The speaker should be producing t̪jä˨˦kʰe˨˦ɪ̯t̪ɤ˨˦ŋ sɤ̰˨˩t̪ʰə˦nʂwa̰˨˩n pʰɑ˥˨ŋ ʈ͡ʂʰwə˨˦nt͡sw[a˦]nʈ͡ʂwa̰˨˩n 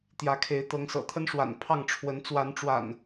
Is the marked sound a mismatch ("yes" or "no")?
yes